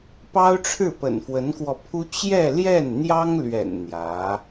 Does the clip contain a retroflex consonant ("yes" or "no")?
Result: yes